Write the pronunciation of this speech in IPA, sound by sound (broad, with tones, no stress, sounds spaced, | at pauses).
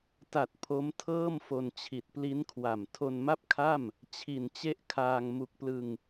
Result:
t a˨˩ t̚ pʰ o˦˥ m tʰ ɤː˥˩ m f o˧ n t͡ɕʰ i˨˩ t̚ p l i˦˥ n kʰ w a˨˩ m tʰ o˧ n m a˥˩ p̚ kʰ a˥˩ m | t͡ɕʰ i˨˩ n t͡ɕ e˦˥ ʔ kʰ aː˧ ŋ m u˨˩ k̚ p l ɯ˧ ŋ